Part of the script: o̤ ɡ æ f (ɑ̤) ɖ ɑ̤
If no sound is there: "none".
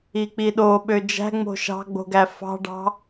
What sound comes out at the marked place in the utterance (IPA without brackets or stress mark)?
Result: ɑ̤